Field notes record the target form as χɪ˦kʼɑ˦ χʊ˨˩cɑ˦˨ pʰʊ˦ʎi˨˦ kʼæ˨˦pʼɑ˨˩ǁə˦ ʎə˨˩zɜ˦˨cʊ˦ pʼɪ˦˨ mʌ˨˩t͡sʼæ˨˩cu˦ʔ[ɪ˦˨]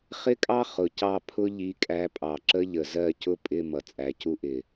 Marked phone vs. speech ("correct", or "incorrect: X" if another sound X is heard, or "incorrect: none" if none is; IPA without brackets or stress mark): incorrect: ɪ˨˩